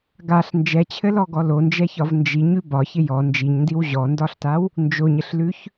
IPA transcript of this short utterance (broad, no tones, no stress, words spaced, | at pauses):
ɡaɬ nd͡ʒɛt͡ɕʰɘlɔɡɔ lond͡ʒɛçɒv nd͡ʒiɲʉ bɒçɪ jɔ nd͡ʒiɲndiw ʑɔndɒɬtaw | nd͡ʒoɲɘɬlʉç